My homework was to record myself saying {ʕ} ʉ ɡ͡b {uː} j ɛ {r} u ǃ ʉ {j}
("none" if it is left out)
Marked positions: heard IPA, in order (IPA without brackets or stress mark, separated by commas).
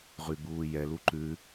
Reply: ʁ, uː, l, none